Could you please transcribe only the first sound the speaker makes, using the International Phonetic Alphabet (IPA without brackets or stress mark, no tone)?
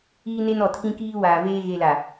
iː